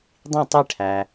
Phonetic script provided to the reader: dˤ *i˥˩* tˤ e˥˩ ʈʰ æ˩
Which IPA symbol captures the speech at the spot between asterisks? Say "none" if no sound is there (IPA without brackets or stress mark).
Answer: ĩ˥˩